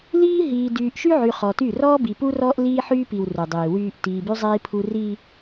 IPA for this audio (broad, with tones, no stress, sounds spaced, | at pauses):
l iː˦ ɦ iː˨ d yː˨ ʔ ʃ y˦ ʕ y˨ χ ɔ˨ t y˦˨ r ɔː˦ b i˨ p u˦ r ɔː˦ ʔ l iː˦ ħ yː˦ p i˨ w r u˨ dˤ iː˨ w yː˦ ʔ t iː˨ b y˦ zˤ iː˦ pʰ u˦ r i˦